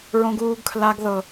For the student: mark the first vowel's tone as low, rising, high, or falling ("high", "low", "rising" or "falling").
high